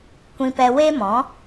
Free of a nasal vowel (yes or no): no